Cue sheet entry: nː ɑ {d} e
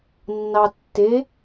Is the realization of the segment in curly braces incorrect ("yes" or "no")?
yes